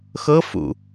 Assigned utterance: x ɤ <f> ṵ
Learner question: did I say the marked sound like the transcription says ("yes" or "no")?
yes